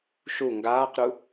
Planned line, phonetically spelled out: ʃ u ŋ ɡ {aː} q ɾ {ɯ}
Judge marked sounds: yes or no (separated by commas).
yes, no